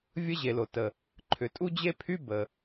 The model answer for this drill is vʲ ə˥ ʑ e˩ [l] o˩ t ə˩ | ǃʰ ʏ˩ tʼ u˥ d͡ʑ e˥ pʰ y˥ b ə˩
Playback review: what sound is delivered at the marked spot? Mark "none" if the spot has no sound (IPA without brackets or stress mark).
l